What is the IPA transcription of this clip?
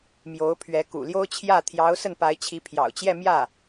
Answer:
m j o˧˥ ʊ̯ pʰ ɥ ɛ˧˥ k ṵ˨˩ l j o˥ ʊ̯ t͡ɕʰ j ä˥˩ t̪ʰ j ɑ˧˥ ʊ̯ s ə˥˩ n p a˧˥ ɪ̯ t͡ɕʰ i˧˥ pʰ j ɑ̰˨˩ ʊ̯ t͡ɕ j ɛ˥˧ m j ä˥˩

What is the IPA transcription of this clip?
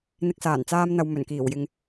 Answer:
n̪ ɪ˧ k̚ s aː˨˩ n t͡s aː˧ m n̪ ɐ˨ w m ɵ˨˩ n k iː˨˩ w j ɪ˨ ŋ

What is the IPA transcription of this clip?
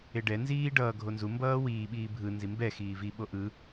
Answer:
e ɖ ɛ n z iː ɖ ʌː ɡʱ o n z u m b ʌː w iː ɓ iː bʱ ɯ n z i m b ɛ x iː v i ɓ o ʔ ɯ

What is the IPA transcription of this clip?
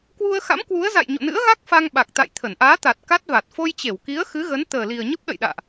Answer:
k w u˧ ə̯ x a̰˧˥ m k w u˨˦ ə̯ z a̰˧˨ j ɲ o̰˧˨ n ɨ̰˧˥ ə̯ ɣ a˦˥ k̚ f a˧ ŋ ɓ a˨˩ k̚ t̪ a̰˧˨ j t̪ʰ ə˧˩ n ʔ aː˨˦ t̪ a˨˩ t̚ k a˦˥ t̚ v a˨˩ t̚ f o˧ j t͡ɕ e˧˩ w k i˨˦ ə̯ x ɨ˨˦ ɣ ə˨˦ n t̪ əː˨˩ l i˨˩ ə̯ ɲ ə˦˥ p̚ ɗ ə̰˧˨ j ɗ a̰ː˧˨ ʔ

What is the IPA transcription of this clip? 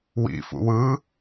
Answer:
w ḭ f ṵ w ɯ

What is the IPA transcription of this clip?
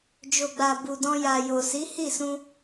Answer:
d͡ʒ o˨ ɡ͡b a˨ b u˨ d ɔ̃˧ j a˨ j o˨ s i˨˦ h i˦˨ s ũ˧

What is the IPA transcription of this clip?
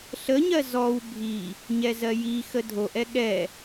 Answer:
ɬ ə ɲ ɜ z ɔ w bʱ i | ɲ ɛ z ɜ j i x ə dʱ o ʔ ɛ ɠ ɛ

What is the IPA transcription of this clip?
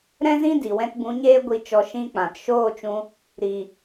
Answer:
ɾ ɛ̃˦ z ĩ˦ d i˨ w ɛ̃˦ t b ũ˨˦ ɲ eː˦ ɡʷ i˧ t͡ʃ ɔ˧ ʃ ĩ˦ k͡p ã˨ t ʃ oː˦˨ t͡ʃ ũ˧ | ɾ i˨

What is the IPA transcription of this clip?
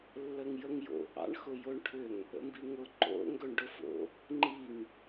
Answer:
lː ə ŋ j ə ŋ j o̰ ʔ ɑ̰ ɳ x ʊ j o ɳ ʈʰ ʏ ŋ | ə̰ m b i ŋ ʊ ǃ o̰ ŋ ɡ ɵ ɳ ɖ ʊ f o̰ | ŋ͡ǃ i ŋ

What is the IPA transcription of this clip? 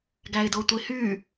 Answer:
ɡ æ ɪ̯ d o tʷ i h y

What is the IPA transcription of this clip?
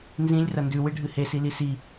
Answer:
n z ĩ lʲ r ɐ n d ʉ w ɨ ɖʱ ɨ h e s i l i s i

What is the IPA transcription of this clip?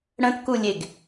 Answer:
ɽ ə̃ t k u lʲ e ɡ

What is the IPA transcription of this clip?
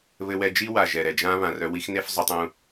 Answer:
β ɘ˧ w ɛ˧ d͡ʒ i˦ w a˨ ʒ ɛ˨ ɾ ɛ˨ d͡ʒ ã˦ β ã˨ r œ˧ w i˦ x n e˦ f zˤ o˧ tˤ ũ˦˨

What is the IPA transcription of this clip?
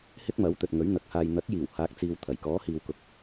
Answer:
h ɪ˥ k̚ m ɐ˨˥ w t̪ ɵ˨ t̚ ŋ ɵ˨˥ ɥ n̪ ɐ˨˥ k̚ h aː˧ j n̪ ɐ˨˥ k̚ j iː˨˩ w h aː˨ k̚ t͡s iː˨ w t̪ʰ ɐ˨˩ j k ɔː˨˥ h iː˨ w k ʊ˨˥ k̚

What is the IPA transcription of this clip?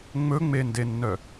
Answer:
ŋ͡m ɵ ŋ͡m e n d e nː œ

